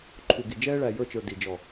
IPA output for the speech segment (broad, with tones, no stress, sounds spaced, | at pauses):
ǃʰ u˨ ɡ i˨ d͡ʒ ɛː˦ ɭ æ˨ j ə˞˦˨ t͡ʃ ə˞˨ d i˨ d͡ʒ ɔ˨